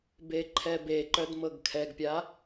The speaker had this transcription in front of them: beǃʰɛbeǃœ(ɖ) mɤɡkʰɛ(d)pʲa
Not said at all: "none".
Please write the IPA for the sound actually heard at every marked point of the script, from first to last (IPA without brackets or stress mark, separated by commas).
d, ɡ